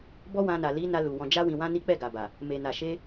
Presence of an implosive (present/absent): absent